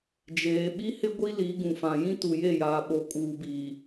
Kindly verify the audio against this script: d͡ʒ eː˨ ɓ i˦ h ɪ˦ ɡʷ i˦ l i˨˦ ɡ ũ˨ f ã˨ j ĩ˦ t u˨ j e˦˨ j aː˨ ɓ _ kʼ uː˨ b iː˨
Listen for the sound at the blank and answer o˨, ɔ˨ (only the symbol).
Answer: o˨